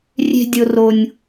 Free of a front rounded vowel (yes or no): yes